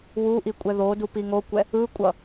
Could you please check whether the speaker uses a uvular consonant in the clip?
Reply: no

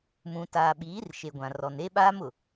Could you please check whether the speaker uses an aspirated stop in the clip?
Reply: no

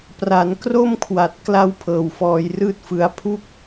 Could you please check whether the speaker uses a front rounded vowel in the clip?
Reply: no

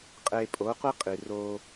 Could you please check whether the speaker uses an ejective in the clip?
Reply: yes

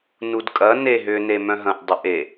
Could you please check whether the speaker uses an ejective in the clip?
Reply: yes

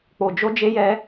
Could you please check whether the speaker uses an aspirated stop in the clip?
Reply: no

